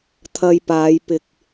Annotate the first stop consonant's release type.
aspirated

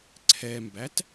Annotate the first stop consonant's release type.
click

